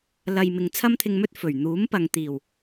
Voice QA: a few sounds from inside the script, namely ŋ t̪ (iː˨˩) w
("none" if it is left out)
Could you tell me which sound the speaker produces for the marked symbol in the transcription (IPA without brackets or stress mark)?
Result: iː˨˩